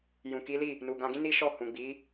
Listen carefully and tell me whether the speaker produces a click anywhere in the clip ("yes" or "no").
no